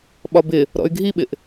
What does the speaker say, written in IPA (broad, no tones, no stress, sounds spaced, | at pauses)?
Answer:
ɓ ɒ b ɪ | ɾ ɔ̰ y̯ ɡʱ i ɓ ɪ ʔ